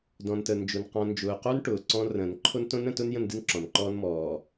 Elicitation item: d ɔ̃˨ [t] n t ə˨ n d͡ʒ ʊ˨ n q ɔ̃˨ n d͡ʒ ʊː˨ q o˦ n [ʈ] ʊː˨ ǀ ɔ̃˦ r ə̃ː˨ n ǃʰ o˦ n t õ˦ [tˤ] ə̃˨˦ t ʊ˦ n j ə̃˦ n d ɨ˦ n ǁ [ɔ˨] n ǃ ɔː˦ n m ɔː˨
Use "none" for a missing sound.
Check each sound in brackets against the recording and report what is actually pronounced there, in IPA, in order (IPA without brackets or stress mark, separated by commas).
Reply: none, ʈ, n, ɔ̃˨